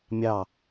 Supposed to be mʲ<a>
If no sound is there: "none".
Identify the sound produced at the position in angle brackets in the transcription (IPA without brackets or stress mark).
ɑ